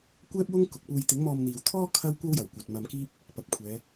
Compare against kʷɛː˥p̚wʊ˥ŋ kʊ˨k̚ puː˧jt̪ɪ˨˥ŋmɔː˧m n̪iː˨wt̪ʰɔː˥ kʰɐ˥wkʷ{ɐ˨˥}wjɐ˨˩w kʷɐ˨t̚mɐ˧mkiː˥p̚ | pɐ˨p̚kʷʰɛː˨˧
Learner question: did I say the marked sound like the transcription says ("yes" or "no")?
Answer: no